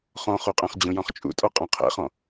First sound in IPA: χ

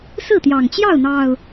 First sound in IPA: s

